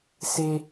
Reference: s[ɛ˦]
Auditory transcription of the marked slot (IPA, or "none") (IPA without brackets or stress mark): e˦